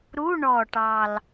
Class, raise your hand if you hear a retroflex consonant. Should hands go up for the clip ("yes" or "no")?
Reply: yes